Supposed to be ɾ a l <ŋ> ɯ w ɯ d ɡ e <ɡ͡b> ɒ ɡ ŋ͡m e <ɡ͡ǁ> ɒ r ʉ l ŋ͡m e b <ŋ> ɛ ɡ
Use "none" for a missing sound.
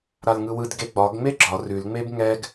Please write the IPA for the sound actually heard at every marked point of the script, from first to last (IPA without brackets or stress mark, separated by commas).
ŋ, ɡ͡b, ɡ͡ǁ, ŋ